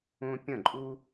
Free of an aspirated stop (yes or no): yes